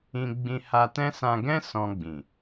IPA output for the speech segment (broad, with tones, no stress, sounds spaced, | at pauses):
ĩ˧ ɡ͡b ĩ˧ h a˧ t ɛ̃˦ s ã˧ ɡ ɛ̃˦ s ɔ̃˧ ɡ͡b ĩ˨